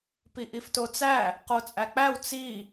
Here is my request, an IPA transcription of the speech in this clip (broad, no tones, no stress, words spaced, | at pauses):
piʔiftot͡sæ | qot͡sʼæk͡pæw t͡si